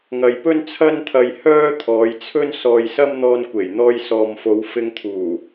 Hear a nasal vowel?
no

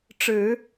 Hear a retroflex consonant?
yes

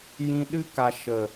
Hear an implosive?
yes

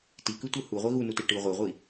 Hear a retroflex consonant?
yes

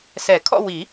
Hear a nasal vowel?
no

